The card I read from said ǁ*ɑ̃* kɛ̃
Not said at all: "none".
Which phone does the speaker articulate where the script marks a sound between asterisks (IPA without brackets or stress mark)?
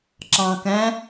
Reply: ɑ̃